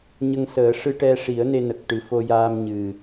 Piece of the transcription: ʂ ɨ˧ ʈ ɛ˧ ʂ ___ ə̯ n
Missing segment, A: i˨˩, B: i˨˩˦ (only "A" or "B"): B